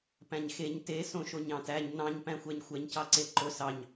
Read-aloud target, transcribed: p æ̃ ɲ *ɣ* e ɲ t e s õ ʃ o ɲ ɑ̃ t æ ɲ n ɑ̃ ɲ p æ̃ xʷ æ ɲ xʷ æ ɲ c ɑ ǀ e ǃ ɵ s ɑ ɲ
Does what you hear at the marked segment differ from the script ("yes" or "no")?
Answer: yes